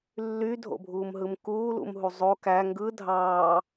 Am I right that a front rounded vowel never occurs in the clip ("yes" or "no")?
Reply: no